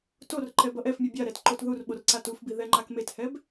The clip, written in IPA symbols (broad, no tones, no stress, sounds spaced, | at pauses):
t o r ǃ ɛ b ʌ ʔ ɛ f mʲ ɛ bʲ a ɾ ɛ t ǃ o t ð u r ɓ o r ǀ a t u f b i ð ɛ ŋ͡ǃ a k m e t h ɛ b